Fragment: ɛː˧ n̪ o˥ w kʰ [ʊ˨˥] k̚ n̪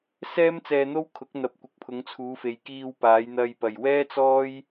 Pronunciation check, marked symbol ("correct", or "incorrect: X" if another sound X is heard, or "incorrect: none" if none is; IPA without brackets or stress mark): correct